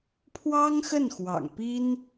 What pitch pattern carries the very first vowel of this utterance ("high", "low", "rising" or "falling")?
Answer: high